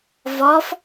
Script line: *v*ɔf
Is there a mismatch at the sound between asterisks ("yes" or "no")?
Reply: no